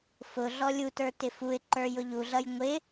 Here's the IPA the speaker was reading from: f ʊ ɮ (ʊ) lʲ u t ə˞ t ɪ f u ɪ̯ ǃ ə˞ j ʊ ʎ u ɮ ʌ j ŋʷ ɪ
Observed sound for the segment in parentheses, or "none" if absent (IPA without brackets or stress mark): ɔ